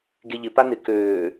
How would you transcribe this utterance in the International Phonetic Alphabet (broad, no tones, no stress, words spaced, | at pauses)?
ɡeʎɪ panɪ køː